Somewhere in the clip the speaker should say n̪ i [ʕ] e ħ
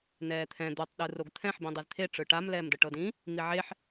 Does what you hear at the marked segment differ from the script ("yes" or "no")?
no